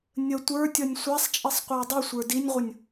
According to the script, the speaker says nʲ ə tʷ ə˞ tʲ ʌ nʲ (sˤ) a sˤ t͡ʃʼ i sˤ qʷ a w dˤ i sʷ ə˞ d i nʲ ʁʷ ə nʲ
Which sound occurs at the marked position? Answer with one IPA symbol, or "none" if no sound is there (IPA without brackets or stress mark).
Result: sʷ